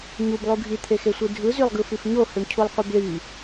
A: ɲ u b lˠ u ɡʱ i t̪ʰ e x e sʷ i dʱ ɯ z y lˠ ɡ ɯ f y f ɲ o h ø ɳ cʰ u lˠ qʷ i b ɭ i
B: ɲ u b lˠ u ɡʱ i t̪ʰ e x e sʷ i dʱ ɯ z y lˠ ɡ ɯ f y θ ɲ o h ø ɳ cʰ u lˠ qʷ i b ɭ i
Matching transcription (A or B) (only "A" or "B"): A